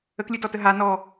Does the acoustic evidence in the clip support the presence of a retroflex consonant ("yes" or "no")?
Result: no